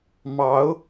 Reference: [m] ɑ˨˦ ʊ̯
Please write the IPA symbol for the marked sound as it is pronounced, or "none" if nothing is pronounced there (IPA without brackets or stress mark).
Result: m